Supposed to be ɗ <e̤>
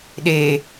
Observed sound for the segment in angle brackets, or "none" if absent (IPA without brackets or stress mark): e